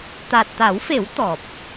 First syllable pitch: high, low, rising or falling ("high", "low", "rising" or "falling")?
low